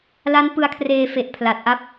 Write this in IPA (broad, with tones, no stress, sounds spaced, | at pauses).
l a˦˥ n p ɯ˧ a̯ kʰ r eː˧ f e˨˩ ʔ pʰ l a˨˩ t̚ ʔ a˥˩ p̚